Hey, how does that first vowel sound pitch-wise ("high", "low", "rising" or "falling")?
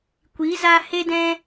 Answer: rising